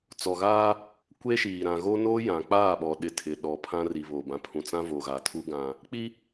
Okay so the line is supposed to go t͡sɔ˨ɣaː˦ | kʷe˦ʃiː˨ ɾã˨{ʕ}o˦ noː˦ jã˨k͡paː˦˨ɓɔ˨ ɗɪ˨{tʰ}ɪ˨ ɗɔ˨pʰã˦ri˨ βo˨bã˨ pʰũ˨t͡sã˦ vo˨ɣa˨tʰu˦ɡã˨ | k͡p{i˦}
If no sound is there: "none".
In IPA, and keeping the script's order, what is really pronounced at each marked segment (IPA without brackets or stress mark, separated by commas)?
ɣ, tʰ, i˦